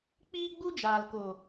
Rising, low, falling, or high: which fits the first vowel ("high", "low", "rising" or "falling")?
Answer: high